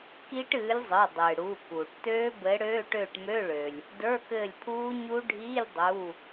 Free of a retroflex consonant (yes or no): no